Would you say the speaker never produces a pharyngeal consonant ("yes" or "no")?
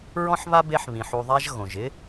no